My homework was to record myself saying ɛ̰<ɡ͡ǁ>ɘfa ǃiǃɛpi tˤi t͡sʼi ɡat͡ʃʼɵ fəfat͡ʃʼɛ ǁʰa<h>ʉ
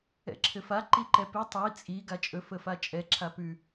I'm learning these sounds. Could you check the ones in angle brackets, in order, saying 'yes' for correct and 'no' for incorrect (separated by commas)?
no, no